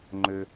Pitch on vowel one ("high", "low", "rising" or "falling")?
high